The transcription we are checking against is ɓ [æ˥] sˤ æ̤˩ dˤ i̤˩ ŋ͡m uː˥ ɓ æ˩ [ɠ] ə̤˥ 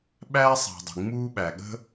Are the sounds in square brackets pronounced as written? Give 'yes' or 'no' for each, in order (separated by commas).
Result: yes, yes